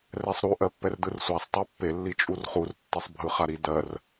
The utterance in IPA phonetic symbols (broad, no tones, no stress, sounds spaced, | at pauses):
r ɛ sˤ ɾ u ʔ ɜ pː ɛ r d ɯ r sʷ a sˤ tˤ ɜ pː e lː i t͡ʃʼ u r χ u r tː e sˤ bʱ ɯ χ a ɾ i d ɜ r